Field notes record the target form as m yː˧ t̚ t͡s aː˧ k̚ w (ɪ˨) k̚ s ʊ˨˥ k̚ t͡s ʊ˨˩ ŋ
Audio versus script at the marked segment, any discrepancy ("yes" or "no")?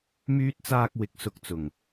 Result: yes